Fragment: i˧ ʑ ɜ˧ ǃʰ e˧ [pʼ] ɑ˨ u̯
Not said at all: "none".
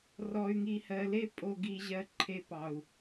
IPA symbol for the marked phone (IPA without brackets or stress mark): p